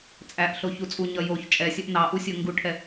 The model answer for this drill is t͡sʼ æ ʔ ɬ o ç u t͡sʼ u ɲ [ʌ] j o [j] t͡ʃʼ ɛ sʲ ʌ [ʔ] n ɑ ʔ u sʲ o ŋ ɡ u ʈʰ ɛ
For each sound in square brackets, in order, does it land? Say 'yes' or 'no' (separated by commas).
yes, no, yes